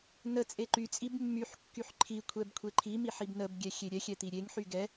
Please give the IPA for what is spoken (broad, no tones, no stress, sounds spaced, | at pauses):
n ə t͡sʼ e ǃ y t͡sʼ i b mː y ħ kː y ħ ǃʰ i kʷʰ ɛ b kʷʰ e ǃʰ i m i ħ i b n ə b ɡʲ ɛ xʲ e ɾʲ ɛ xʲ ɛ t̪ i ɾʲ e ŋ ħ y ɡ ɛ